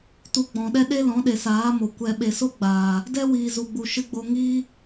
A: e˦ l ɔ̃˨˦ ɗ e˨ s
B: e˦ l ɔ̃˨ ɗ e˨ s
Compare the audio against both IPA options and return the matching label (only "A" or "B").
A